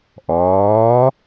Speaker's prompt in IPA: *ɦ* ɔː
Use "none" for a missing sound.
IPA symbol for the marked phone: ʔ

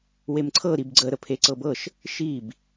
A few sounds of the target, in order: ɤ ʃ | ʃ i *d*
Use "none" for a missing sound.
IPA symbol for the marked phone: b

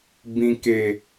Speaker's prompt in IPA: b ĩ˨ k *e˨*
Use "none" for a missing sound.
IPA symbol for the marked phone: e˨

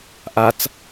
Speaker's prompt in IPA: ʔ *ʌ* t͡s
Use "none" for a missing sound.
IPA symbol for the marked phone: a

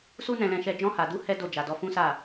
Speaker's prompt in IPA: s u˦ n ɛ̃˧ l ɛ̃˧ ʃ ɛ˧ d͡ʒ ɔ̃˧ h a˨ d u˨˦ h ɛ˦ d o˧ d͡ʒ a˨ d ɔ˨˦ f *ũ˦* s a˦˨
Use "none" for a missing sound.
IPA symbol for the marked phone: ũ˦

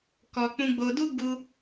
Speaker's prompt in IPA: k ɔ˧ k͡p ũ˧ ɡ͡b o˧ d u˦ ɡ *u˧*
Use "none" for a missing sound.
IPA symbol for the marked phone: u˧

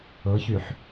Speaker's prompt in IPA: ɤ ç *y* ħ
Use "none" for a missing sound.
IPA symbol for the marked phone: y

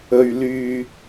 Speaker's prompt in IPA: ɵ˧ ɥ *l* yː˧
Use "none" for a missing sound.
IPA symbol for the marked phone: l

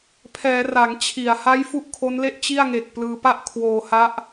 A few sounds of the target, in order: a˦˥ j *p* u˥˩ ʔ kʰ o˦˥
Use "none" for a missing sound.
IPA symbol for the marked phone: f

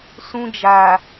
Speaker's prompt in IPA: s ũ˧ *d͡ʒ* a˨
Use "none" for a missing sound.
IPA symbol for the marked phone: d͡ʒ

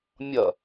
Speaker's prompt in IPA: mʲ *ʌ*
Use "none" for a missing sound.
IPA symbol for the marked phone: ʌ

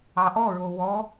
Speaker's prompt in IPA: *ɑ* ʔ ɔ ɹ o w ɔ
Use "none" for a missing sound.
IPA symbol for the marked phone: ɑ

